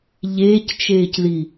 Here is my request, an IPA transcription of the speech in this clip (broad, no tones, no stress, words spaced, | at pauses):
ʎeːct͡ʃeːcði